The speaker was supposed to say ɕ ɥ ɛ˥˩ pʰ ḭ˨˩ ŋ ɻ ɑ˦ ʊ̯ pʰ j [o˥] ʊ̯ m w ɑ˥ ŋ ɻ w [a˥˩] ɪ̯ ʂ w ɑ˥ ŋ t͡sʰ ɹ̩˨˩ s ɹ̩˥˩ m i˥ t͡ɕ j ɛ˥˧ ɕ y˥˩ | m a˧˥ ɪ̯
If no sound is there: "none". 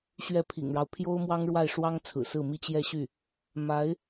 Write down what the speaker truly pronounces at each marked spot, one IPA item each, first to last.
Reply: o˥, a˥˩

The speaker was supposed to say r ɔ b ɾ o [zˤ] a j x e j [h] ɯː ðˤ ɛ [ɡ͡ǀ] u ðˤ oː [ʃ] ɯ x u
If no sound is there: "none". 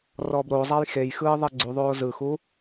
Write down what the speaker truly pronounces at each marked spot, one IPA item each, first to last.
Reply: zˤ, x, ɡ͡ǀ, z

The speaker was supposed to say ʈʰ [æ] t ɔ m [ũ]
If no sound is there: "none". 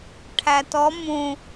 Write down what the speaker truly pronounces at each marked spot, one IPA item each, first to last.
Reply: æ, ũ

